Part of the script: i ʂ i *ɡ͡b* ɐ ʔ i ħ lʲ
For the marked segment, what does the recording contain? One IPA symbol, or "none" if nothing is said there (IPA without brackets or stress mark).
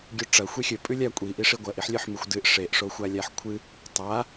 ɡʷ